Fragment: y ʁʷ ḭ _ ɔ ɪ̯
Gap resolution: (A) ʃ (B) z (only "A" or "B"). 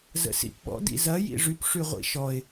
A